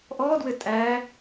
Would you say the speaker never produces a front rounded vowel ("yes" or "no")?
yes